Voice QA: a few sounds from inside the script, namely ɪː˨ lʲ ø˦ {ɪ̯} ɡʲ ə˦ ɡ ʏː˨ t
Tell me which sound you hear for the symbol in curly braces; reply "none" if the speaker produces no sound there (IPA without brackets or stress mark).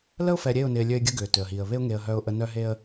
ɪ̯